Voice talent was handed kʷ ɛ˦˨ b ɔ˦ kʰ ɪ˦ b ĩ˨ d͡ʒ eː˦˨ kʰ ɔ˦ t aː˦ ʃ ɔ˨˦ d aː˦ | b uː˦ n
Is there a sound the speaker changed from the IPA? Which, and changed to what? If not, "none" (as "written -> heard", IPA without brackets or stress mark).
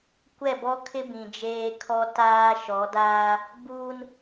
eː˦˨ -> eː˦